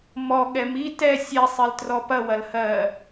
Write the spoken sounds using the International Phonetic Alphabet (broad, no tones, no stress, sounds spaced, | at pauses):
m ɔ ɠ ɛ m i t ɛ sʲ ɛ sˤ i l t r ɔ p ɐ w ɐ l h ɜ